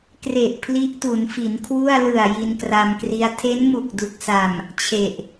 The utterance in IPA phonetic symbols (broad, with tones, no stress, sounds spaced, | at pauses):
k r e˨˩ ʔ pʰ l i˦˥ ʔ t u˩˦ n f i˩˦ n kʰ w u˥˩ a̯ l ɯ˨˩ a̯ j i˧ n k r a˧ m k r i˦˥ a̯ tʰ e˦˥ n m u˨˩ k̚ d u˨˩ k̚ s a˨˩ m | t͡ɕʰ e˨˩ ʔ